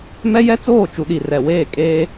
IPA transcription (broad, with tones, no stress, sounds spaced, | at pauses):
m ɛ˦ j ɛ˦ t͡s oː˦˨ t͡ʃ u˨ ɗ i˨ r ɛ˨ w eː˦˨ kʼ eː˦